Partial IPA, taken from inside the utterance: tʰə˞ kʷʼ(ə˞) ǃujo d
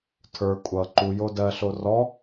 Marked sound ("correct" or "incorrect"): incorrect